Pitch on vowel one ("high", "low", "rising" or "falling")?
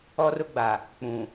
high